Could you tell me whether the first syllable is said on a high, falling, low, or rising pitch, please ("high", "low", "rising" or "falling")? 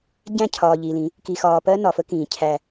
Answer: falling